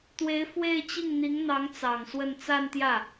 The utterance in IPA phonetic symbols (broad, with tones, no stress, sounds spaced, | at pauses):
t̪ w e˧˥ ɪ̯ f w e˥˧ ɪ̯ t͡ɕ i˥˩ ŋ n̪ i˧˥ ŋ n̪ ɑ˧˥ ŋ t͡s ɑ˨˩ ŋ s w ə˥˧ n t͡s a˥˧ n t̪ j ä˥˩